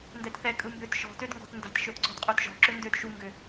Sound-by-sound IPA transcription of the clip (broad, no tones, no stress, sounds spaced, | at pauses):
n d ɛ t θ ɛ kʼ ɯ m b ø t ʃ ɔ̤ t ø d ŋ ɡ ɔ̤ t n d a̤ t ʃ ø d ǀ ɔ̤ d qʼ ʉ t ʒ ɔ̤ ǁ ø n d ø d ʃ u ŋ ɡ ø